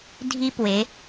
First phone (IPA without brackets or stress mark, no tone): dʱ